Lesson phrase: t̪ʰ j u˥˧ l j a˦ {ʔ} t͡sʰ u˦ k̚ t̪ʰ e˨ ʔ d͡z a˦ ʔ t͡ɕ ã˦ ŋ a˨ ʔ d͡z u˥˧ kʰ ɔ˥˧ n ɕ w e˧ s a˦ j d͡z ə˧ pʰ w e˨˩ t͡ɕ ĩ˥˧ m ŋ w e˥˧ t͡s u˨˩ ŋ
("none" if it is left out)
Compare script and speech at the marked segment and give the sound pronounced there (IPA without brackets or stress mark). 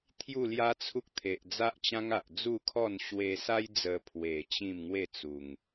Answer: none